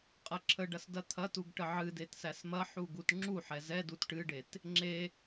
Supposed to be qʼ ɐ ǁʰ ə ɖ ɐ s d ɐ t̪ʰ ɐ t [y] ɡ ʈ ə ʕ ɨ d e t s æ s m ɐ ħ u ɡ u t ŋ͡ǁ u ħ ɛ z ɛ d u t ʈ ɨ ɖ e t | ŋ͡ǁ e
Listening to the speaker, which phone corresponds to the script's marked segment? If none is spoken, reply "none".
u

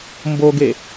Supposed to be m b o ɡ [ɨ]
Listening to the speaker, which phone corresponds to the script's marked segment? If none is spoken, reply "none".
e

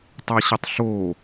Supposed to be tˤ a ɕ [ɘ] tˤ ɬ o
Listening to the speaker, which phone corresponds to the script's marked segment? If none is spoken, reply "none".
ɘ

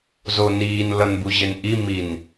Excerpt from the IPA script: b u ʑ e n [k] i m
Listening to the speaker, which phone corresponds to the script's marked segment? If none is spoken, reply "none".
ʔ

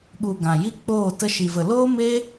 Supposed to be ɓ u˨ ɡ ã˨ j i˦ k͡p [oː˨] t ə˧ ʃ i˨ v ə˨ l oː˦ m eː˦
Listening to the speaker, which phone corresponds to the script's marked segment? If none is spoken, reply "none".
oː˦˨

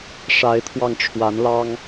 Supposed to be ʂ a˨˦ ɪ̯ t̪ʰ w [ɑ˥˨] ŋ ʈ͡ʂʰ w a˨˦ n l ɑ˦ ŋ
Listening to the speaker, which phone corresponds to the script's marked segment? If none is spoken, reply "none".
ɑ˧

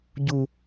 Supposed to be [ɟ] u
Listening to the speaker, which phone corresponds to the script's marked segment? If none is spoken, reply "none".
ɟ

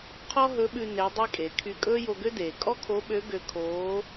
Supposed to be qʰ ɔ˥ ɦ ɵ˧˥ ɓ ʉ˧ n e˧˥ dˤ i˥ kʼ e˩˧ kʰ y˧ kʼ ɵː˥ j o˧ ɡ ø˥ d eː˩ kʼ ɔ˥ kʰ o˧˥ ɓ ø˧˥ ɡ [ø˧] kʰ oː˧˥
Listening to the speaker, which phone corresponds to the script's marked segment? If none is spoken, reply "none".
ø˧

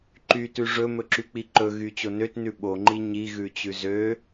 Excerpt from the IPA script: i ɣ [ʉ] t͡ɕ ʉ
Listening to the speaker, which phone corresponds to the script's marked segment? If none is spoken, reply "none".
ʉ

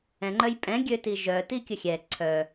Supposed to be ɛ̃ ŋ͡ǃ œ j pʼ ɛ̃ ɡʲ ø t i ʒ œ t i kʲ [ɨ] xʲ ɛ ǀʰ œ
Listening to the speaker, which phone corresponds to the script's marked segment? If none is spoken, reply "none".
ə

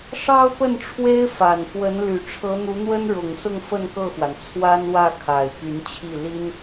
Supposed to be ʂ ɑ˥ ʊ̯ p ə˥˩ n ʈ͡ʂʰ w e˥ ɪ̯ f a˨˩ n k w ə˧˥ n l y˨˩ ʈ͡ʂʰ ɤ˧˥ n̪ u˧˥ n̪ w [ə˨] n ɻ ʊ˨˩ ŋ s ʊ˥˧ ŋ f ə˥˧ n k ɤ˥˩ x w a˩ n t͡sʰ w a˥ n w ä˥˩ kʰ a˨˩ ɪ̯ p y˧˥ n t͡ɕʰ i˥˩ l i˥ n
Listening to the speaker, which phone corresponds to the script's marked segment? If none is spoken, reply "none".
ə˥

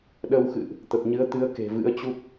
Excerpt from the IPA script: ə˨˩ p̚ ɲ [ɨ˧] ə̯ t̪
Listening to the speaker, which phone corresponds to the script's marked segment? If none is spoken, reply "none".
ɨ˨˦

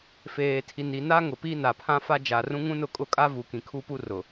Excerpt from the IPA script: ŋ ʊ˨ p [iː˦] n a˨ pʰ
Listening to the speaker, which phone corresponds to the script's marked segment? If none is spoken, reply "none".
i˦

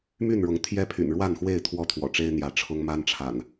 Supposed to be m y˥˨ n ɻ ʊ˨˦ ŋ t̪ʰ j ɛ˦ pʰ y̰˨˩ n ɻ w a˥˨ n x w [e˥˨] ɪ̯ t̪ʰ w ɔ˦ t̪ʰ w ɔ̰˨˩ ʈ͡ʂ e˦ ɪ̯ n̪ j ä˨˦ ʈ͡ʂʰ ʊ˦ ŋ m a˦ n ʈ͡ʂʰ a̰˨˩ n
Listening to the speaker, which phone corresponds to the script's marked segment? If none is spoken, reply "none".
e˥˨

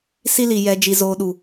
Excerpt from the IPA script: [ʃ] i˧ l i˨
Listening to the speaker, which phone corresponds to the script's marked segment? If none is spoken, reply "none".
s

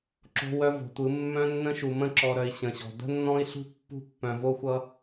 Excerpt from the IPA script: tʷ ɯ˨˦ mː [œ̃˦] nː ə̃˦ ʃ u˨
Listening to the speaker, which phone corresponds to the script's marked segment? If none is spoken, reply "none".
œ̃˦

